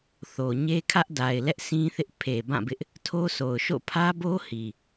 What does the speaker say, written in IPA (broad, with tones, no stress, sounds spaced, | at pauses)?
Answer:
θ o˨ ɲ e˦ kʰ ä˦ ʔ d a˨ ɪ̯ l ɛ˦ ʔ s ĩ˦ θ ɪ˦ ʔ pʰ e˨ b ã˦˨ b ɪ˦ ʔ | tʰ o˦ s o˨ ʊ̯ ʃ o̰˦˨ pʰ ä˦ b o˦ h i˨